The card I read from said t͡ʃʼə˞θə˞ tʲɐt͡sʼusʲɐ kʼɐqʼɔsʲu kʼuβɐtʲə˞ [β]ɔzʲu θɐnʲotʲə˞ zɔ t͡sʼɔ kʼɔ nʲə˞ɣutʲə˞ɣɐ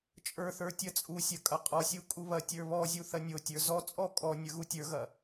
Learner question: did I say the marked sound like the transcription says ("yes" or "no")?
yes